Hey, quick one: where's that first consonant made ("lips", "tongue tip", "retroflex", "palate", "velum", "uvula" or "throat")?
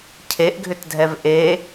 palate